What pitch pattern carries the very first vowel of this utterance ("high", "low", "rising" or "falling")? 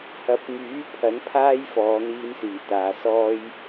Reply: rising